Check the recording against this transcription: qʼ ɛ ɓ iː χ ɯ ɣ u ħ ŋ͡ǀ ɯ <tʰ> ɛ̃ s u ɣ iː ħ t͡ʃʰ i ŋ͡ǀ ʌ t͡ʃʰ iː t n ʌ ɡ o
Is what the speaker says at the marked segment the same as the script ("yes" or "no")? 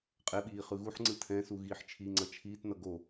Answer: yes